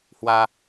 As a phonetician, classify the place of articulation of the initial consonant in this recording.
glottal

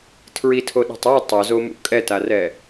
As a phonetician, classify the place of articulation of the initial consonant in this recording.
alveolar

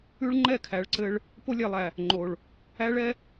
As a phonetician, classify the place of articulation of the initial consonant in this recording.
retroflex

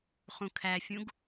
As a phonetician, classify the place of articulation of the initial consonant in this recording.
uvular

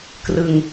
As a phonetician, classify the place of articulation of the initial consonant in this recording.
velar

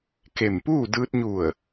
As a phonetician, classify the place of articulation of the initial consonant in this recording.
velar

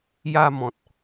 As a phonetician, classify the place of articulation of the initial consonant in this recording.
palatal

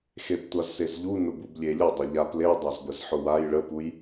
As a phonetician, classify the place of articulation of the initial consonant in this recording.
velar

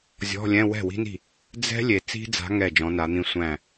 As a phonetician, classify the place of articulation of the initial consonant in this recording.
alveolar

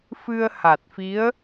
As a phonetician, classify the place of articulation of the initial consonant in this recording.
labial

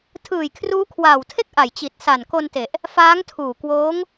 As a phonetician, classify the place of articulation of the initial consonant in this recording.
alveolar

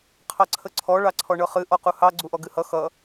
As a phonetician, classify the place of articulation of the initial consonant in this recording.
uvular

